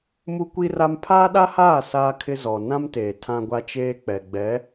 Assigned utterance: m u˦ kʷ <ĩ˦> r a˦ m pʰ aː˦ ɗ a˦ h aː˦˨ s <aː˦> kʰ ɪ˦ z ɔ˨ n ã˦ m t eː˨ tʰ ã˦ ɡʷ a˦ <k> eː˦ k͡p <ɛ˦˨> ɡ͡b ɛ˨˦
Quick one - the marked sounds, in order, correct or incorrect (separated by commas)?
incorrect, correct, incorrect, incorrect